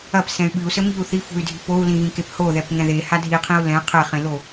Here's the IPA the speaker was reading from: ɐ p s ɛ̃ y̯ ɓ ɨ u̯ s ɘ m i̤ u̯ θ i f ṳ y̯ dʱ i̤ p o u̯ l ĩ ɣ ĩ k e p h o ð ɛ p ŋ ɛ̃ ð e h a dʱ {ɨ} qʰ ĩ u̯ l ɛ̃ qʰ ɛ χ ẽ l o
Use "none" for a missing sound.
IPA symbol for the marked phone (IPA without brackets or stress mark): i